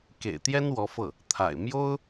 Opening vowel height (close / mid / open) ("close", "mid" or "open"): mid